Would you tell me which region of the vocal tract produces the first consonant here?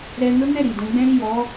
tongue tip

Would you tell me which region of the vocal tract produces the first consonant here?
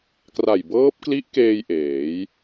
velum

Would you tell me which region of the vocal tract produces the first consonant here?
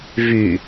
lips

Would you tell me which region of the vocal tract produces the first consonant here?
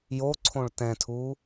palate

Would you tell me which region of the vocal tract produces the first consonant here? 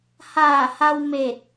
throat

